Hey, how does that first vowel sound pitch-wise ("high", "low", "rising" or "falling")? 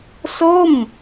falling